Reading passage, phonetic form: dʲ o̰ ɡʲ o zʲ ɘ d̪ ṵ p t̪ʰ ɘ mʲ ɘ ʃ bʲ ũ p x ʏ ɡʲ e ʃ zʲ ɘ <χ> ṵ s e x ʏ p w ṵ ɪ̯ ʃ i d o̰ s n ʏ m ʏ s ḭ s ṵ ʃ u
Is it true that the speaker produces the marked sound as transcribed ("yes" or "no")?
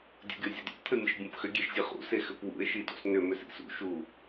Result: yes